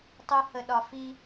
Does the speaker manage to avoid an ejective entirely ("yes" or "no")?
yes